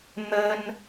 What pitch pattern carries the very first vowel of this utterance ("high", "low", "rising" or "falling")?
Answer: high